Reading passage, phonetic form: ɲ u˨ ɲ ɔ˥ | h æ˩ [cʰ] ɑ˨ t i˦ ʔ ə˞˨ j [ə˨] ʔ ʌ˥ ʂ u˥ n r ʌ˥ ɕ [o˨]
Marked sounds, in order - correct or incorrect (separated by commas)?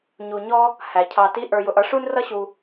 correct, incorrect, incorrect